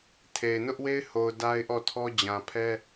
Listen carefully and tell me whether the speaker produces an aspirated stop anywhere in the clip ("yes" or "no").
yes